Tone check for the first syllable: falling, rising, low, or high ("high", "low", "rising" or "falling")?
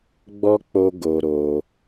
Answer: high